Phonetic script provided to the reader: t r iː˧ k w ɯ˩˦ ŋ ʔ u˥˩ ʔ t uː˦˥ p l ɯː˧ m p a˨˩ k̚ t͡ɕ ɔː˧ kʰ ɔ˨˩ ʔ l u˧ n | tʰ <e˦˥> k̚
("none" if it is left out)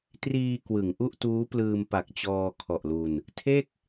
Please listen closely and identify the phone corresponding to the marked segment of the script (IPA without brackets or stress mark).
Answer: e˥˩